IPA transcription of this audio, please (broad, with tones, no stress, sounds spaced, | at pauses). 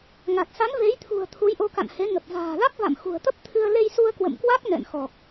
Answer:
ŋ a˨˩ t̚ s a˨˦ n v e˨˦ j t̪ʰ ṳ˨˩ ə̯ t̪ʰ u˨˦ j ʔ o˧ k a̰˧˨ n h e˨˦ ŋ ə˨˩ p̚ v a̤ː˨˩ l a˦˥ k̚ v a̰˧˨ m x ṳ˨˩ ə̯ t̪ ə˦˥ p̚ t̪ʰ ɨ˧ ə̯ l e˧ j s u˧ ə̯ k w ə̰˧˨ m k w a˦˥ k̚ n ɛ̰˧˨ n x ɔ˨˩ k̚